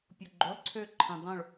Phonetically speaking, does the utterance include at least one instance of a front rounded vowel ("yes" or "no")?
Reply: yes